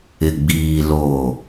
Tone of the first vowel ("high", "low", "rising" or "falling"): low